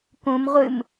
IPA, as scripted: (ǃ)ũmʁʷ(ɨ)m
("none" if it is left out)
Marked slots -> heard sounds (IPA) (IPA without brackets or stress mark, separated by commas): k, ɨ